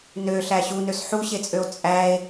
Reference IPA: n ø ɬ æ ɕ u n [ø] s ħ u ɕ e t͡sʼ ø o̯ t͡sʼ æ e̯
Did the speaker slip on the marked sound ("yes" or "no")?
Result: no